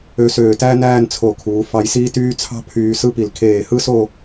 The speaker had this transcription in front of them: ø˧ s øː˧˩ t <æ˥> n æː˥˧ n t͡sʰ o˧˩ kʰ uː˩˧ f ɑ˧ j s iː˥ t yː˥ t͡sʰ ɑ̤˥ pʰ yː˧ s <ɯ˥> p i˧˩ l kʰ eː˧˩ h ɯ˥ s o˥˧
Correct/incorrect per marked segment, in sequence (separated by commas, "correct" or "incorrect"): correct, correct